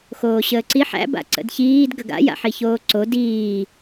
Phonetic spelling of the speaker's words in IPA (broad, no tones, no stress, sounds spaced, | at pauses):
x oː ɕ əː ǀ i ħ æ̰ b a̰ ǀ ə̰ d ç iː d ɡ ə ɡ a̰ j a̰ ħ i ç oː ǀ o d iː